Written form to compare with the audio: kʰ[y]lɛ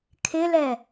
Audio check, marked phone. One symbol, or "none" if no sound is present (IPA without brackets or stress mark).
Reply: ɪ